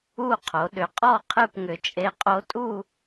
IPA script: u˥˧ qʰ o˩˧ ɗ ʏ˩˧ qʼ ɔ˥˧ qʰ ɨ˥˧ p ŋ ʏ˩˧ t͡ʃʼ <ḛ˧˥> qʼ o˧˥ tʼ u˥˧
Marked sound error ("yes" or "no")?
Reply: yes